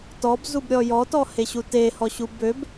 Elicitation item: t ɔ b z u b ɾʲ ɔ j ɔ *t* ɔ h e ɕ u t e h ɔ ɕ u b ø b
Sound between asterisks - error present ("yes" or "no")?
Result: no